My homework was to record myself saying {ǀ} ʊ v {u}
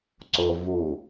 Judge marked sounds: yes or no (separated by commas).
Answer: yes, yes